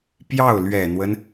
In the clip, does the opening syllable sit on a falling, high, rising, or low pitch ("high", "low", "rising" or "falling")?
falling